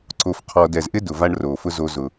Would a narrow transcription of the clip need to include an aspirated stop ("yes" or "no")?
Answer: yes